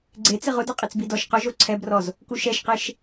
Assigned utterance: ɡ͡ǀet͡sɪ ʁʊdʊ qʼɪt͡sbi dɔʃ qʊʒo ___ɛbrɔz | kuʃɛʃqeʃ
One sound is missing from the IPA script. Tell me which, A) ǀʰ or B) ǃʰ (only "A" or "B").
A